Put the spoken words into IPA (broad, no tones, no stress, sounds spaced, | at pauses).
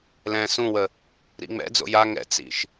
l ɛ̃ s ũ w ə | ɾ ḭ ŋ͡m ɛ̰ d͡z o̰ j a ŋ ɛ̰ t͡s ḭ ʃ